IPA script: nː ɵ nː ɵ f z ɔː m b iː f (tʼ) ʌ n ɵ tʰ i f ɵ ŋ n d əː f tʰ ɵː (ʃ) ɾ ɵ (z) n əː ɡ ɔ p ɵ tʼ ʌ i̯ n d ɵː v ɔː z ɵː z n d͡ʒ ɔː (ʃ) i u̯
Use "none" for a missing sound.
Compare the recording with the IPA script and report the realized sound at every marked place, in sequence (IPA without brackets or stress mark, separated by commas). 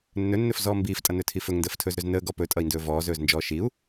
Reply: tʼ, z, z, ʃ